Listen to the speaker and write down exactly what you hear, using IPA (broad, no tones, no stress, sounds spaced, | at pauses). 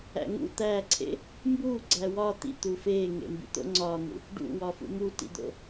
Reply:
æ̰ ŋ ṵ t̪ æː ǀʰ ḛ | m b uː ɡ͡ǀ æ w ɒ t̪ ḭ t̪ u f eː ŋ ḛ m b ḭ t̪ o̰ ŋ͡ǀ ɒː n̪ ṵ | ɖ ṵ w ɒ f ṵ m u t ḭ d̪ o̰